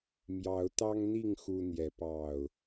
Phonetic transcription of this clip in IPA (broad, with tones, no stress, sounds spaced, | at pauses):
m j ɑ˨˦ ʊ̯ t̪ ɑ˦ ŋ n̪ i˥˨ ŋ x u˦ n̪ j ɛ˨˦ p ɑ˥˨ ʊ̯